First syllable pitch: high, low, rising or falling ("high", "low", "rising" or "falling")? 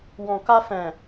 low